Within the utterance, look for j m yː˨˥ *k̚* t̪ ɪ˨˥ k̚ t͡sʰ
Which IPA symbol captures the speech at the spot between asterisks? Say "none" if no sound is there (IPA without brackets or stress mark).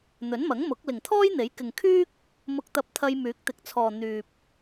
k̚